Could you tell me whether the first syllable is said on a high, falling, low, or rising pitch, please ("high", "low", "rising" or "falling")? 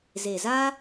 low